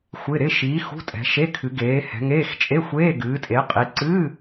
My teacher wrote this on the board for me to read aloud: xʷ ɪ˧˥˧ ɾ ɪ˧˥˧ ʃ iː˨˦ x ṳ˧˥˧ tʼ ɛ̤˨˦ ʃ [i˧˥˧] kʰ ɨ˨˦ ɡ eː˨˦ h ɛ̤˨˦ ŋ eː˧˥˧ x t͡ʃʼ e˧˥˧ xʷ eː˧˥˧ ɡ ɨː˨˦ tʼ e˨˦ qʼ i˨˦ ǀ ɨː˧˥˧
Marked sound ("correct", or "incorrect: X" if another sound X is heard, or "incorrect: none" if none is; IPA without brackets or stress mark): incorrect: e˧˥˧